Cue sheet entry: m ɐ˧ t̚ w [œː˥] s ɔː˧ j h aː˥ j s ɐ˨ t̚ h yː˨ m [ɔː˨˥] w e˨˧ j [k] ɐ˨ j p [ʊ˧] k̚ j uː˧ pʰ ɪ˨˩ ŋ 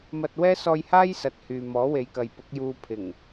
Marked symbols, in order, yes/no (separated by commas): no, yes, yes, no